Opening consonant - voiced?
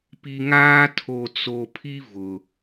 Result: no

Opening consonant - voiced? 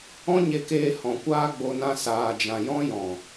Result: yes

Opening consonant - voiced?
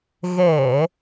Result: yes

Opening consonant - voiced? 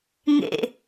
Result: yes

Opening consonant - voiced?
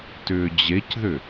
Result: no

